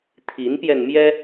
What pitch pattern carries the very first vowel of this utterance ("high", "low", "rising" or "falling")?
rising